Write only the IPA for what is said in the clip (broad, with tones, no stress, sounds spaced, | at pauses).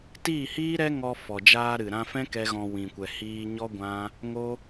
t iː˦˨ h iː˦ ɾ ɛ˦ ŋ ɔ˧ f ɔ˨ d͡ʒ aː˧ ɾ ɨ˨ ɾ ã˧ f ɛ̃˦ k ɛ˦ ɣ ɔ̃˧ w ĩ˨ kʷ ɛ˨ h iː˧ ɲ ɔ˦ ɡʷ ã˦ | ŋ o˦